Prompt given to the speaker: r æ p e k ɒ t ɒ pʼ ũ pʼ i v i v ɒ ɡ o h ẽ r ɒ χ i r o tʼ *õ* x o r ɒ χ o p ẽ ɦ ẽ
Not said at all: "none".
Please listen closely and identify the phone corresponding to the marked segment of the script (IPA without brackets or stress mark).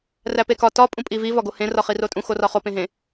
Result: ũ